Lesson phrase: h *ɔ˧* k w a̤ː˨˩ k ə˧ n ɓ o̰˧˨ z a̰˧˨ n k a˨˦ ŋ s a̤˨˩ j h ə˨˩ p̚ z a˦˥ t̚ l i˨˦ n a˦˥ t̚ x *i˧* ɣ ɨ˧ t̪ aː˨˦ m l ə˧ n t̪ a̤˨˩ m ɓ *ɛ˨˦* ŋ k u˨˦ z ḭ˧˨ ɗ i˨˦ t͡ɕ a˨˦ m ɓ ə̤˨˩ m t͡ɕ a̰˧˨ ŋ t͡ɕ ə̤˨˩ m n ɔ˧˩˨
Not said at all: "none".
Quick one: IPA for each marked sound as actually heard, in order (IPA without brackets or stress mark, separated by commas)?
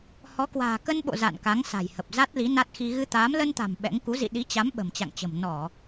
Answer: ɔ˨˦, i˧, ɛ̰˧˥